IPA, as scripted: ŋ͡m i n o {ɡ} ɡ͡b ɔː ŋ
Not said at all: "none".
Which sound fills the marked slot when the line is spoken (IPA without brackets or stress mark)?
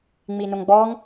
ŋ